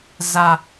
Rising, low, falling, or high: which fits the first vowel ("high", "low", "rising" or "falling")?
high